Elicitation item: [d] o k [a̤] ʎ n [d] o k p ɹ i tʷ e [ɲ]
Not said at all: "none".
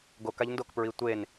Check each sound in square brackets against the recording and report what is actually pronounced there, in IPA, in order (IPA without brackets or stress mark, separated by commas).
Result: ɡ, a, d, n